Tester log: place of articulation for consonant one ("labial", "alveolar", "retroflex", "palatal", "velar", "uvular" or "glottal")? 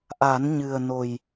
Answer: glottal